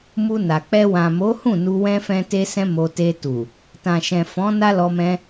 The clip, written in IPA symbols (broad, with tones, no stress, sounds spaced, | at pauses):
m u˧ n a˨ k͡p ɛ˧ w ã˨ m o˨˦ h ũ˦˨ n u˧ w ɛ̃˦ f ɛ̃˦ t e˦ s ɛ̃˦ m o˧ t e˧ t u˨ | t ã˨ ʃ ɛ̃˨ f ɔ̃˨˦ n a˦ l ɔ˧ m ɛ̃˧